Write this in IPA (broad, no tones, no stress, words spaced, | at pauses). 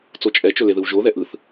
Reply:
t͡sot͡ʃʼɛt͡ʃɵ leðɯwʒoðɛ ʔɯθ